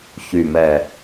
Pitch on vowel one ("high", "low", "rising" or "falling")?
low